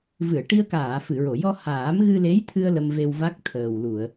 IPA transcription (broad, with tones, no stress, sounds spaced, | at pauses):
v ɨ˨˩˨ ə̯ ʈ i˧ ə̯ k aː˨˩˨ f ɨ˨˩˨ ɹ o˨˩˨ j ɔ˧ h aː˨˩˦ m ɣ ɨ˧ l e˧˥ j t̪ʰ ɨ˧ ə̯ l ə˧ m v e˧ w v a˦˥ k̚ t̪ʰ əː˨˩ w l u˨˩˨ ə̯